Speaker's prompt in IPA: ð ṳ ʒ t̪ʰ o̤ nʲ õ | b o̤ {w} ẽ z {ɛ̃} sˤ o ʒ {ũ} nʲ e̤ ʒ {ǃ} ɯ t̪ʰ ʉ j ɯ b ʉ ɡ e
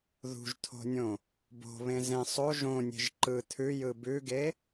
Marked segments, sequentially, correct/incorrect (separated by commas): incorrect, incorrect, incorrect, correct